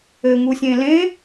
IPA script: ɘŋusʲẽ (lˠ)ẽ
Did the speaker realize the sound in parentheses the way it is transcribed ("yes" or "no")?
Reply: no